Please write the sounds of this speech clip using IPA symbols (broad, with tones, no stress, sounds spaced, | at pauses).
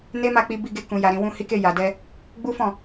n e˦ m a˦˨ k͡p i˧ b i˧ ɡ e˧ k ũ˨ j a˨ ɾ ĩ˨ w ũ˧ h i˧ k e˧ j a˨ d ɛ˧ | ɡ͡b u˦ f ɔ̃˦˨